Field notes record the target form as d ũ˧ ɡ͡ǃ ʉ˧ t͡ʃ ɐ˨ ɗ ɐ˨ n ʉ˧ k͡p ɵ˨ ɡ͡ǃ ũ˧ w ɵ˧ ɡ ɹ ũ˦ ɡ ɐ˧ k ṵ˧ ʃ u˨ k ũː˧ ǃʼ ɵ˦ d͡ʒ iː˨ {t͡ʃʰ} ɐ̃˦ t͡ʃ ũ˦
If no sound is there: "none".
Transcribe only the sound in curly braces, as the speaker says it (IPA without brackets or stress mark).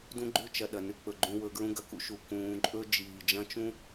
d͡ʒ